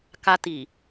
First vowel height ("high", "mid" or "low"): low